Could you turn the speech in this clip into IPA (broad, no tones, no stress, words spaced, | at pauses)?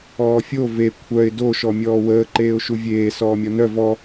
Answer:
ɔːfʲo ve kʷʰœɪ̯ doʃɔ mʲɔːwəːǃeːʊ̯ ʃuvʲeː sɔːmʲɔnœ vɔ